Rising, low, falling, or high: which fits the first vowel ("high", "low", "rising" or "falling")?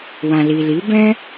low